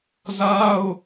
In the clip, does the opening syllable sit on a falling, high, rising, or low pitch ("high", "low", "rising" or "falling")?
high